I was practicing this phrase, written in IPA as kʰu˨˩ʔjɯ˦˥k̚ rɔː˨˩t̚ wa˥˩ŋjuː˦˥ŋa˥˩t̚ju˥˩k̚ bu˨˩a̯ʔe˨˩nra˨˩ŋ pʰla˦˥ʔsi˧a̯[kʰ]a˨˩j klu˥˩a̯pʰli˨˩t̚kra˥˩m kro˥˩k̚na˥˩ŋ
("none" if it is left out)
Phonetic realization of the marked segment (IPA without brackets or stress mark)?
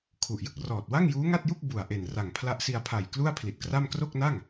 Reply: pʰ